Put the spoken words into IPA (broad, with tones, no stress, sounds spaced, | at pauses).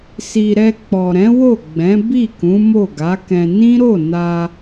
s i˨ ɾ ɛ˧ k͡p ɔ˨ ɾ ɛ̃˨˦ w o˦˨ ɡ͡b ɛ̃˨˦ b i˦˨ k ũ˨˦ m o˦˨ ɡ a˨˦ k ɛ̃˧ n ĩ˦ ɾ o˦˨ n a˧